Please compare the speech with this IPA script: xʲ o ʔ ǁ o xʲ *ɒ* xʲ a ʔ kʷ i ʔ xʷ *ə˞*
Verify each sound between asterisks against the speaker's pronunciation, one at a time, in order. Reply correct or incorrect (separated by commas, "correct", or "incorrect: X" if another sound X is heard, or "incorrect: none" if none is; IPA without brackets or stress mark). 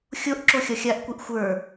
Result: correct, correct